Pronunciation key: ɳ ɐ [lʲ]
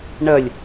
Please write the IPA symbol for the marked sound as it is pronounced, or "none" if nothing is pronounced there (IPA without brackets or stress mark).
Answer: lʲ